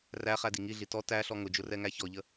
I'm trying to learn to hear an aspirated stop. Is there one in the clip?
no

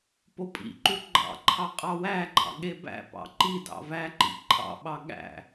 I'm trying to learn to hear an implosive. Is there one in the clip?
yes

